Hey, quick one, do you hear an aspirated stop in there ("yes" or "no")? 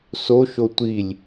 no